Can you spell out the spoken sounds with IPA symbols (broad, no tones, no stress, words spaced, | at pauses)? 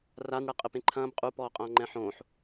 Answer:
ranɽɛ qʼɘpẽǃʰɐ̃ːb qʼupɔːqʼɐ̃ː ŋ͡ǃɛ̃ħõːħ